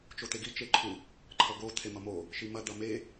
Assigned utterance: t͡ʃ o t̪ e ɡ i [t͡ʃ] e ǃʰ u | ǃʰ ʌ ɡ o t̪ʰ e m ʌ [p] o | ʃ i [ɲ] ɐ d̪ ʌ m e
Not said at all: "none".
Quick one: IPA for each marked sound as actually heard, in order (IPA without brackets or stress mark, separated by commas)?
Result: t͡ʃ, m, m